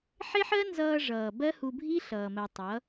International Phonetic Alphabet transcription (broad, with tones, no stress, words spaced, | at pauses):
ħe˦ħɜ˦nzʌː˧ ʐʌː˨ bɜ˦ hu˧bʱi˦ ɬʌː˨mɜ˨ tˤʌ˨˦